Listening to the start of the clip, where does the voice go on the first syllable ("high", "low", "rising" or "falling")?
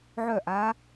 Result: falling